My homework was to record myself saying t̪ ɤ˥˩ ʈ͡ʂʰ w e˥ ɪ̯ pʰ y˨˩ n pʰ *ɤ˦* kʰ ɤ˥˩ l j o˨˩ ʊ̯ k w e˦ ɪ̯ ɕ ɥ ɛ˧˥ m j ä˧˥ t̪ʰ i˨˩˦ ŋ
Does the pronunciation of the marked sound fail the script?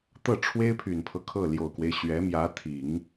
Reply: no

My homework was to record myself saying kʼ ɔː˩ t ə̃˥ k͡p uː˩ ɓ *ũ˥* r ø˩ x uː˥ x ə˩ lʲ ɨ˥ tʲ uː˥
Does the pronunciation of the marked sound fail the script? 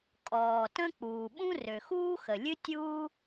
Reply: no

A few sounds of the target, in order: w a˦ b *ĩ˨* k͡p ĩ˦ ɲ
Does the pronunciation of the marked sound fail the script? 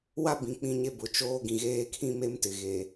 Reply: no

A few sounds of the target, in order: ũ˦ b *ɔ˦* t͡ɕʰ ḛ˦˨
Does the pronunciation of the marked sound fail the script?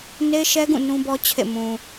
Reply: no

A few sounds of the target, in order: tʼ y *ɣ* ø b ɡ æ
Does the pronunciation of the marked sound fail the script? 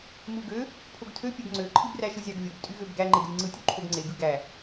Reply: no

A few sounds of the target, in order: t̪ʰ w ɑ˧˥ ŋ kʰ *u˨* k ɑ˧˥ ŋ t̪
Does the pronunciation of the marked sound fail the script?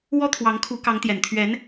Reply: yes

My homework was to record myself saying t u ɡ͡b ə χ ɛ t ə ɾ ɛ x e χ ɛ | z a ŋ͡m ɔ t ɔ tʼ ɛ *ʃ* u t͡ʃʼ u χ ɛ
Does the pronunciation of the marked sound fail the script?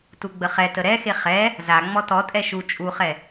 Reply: no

